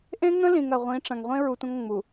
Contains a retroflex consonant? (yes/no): yes